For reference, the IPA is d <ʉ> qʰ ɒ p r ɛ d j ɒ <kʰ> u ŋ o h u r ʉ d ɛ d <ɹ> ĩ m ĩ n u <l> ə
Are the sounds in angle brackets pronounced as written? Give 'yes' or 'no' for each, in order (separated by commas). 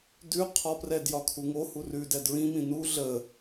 yes, yes, yes, no